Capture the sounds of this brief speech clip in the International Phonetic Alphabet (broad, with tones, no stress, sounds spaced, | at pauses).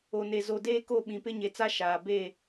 o˨ n e˨ z o˨ d eː˦ k o˦˨ ɓ ĩ˨ p ɪ˦ ɲ e˨ t͡s a˦ ʃ aː˨ b e˦˨